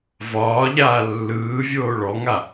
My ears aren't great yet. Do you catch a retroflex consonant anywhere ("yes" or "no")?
yes